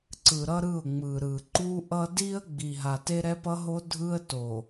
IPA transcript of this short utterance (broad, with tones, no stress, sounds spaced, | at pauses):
ǀ ɯ˨ ɾ ʌ˦ ɾ ɯ˦˨ ʊ̯ ŋ͡m ɯ˨ ɾ ɯ˨ ǃ u˦ ʔ ʌ˦ d i˦ ə̯ ɡ͡b i˨ ɦ a˨ t e˦ ɾ ɛ˦ p ʌ˦ ɦ o˦ dʱ ɯ˦ ə̯ t o˨